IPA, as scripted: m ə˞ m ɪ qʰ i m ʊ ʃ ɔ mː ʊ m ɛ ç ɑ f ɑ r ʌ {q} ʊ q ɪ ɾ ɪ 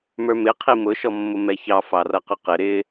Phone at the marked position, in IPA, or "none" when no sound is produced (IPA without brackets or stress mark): q